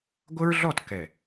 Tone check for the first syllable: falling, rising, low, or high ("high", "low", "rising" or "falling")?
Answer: high